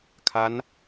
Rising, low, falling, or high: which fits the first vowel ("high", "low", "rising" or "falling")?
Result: rising